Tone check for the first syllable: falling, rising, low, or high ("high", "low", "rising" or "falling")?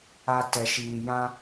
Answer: low